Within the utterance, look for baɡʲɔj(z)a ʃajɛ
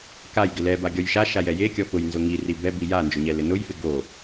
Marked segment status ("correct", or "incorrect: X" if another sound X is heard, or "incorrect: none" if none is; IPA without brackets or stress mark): incorrect: ʃ